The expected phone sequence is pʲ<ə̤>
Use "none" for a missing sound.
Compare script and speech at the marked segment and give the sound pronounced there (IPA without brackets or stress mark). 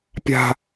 a̤